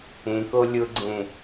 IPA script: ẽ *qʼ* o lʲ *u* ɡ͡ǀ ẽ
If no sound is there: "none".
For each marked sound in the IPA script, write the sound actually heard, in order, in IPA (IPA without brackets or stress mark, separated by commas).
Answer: k, ʊ